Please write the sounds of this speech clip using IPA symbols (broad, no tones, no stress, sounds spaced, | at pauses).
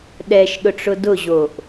ɗ ɛ ʃ ɗ ʊ ʈ͡ʂ ʊ d ʊ ʑ o ʔ